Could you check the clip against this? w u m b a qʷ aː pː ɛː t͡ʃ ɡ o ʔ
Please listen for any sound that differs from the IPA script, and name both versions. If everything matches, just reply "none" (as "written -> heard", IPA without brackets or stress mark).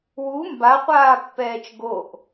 none